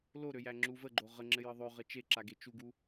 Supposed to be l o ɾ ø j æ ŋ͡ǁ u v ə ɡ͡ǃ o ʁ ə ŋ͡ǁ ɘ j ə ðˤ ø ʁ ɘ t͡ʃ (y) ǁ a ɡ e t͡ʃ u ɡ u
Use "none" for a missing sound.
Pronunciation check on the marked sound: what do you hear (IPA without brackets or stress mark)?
e